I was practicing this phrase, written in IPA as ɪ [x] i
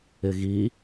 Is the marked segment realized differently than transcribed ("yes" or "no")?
yes